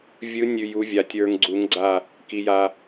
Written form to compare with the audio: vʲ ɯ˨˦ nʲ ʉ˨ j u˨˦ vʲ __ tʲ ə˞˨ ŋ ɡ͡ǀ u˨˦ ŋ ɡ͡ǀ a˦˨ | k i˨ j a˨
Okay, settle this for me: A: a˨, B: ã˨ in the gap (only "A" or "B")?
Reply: A